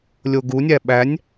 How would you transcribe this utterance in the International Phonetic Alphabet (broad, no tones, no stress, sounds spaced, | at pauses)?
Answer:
lʲ o ɡ u nʲ æ ɓ æ nʲ